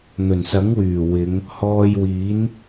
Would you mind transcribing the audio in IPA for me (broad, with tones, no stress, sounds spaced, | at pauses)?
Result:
n̪ ɵ˨˩ n s ɐ˨˥ ŋ w yː˨˩ w ɪ˨˧ ŋ | h ɔː˧ j w iː˨˥ n